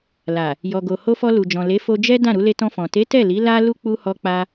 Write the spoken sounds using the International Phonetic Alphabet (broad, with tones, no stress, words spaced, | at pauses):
la˨ | jɔ˨ɡo˨ ho˧fɔ˧lu˨d͡ʒɔ̃˨ le˨˦fo˧d͡ʒɛ˦ dã˦˨ ɾu˧le˧tɔ̃˧fɔ̃˨ te˨˦ tɛ˦˨li˨˦ la˦lu˦ k͡pu˧hɔ˧k͡pa˧